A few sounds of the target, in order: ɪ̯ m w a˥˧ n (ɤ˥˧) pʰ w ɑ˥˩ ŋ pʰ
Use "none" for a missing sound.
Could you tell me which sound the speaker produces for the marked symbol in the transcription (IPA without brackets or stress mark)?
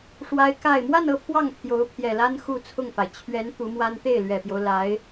ɤ˥˧